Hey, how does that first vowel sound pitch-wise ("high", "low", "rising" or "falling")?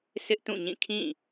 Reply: high